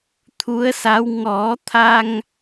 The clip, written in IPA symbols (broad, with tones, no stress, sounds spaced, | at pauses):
t̪ʰ u˧˥ ə̯ s a˧˥ w ŋ ɔ˨˩˦ t̪ʰ a˧ ŋ